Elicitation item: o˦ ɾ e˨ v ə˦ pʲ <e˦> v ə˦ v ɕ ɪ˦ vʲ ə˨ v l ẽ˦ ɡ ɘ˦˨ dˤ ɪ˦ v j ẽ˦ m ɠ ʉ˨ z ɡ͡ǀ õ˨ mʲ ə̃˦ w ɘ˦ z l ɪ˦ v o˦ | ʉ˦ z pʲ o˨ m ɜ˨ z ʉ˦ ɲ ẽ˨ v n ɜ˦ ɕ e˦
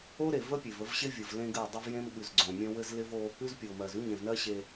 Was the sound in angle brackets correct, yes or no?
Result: no